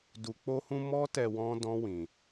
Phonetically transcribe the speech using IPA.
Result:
du˨k͡po˧hũ˧ mɔ˦tɛ˧ wɔ̃˦dɔ̃˦wĩ˧

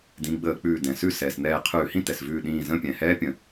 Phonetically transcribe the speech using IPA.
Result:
dĩ˩˧˩ɡ͡bəː˧˩˧ k͡pʉː˧˩dɛ̃˩sʉ˥˨ sɛː˩sn̪ɛː˧˩ qʰʉː˧˩˧hĩ˥˨tɛ˩s vʉː˧˩ɗĩː˧˩ zə̃˥˨ pʲɛ̃˩hɛː˦˥pʲə̃˩

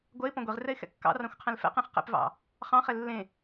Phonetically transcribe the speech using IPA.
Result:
ɡʷɜɪ̯ pɔ̃ɡʷeʁrɛɪ̯ xɛ̰kːɑ̰rɑ̃xʷ qʰɛ̃lfɛ̰qẽχ qɛ̰pvɑ̰ | χɑ̃χɛ lːẽ

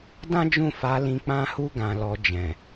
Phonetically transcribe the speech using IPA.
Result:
dã˦d͡ʒũ˦˨ fa˨˦lĩ˧ k͡pã˧hu˧ɡã˨ lɔ˧ d͡ʒɛ̃˨

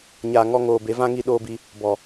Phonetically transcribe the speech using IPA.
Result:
ɲaː˨ ŋɔ˧ ŋoː˨ be˨˦vã˦ ŋi˧ɗoː˧bi˧ | bɔ˨

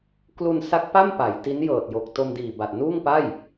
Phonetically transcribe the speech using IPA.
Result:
klu˧nsa˦˥k̚pa˥˩m pa˩˦j ti˦˥njɤː˨˩t̚jo˨˩k̚ to˧mdiː˨˩ba˨˩t̚ nuː˥˩ŋpa˥˩j

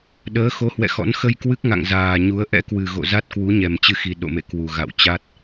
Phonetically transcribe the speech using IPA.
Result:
ɗəː˨˦xo˨˦ hwɛ̰˧˨xɔ̰˧˥n xə˧j kwɨ˦˥k̚ŋa̰˧˨ŋ zaː˨˩ɲu˨˦ə̯ ʔɛ̰˧˥kwɨ˨˩ ɣo̰˧˨za˦˥t̚kwu˨˦ɲɛ˨˩m t͡ɕɨ˧xi˨˩ɗo̰˧˨mḛ˧˨ kwu˨˩ ɣa̰˧˨wt͡ɕa˦˥t̚

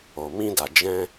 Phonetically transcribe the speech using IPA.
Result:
o˨mĩ˧da˨ d͡ʒɛ̃˧

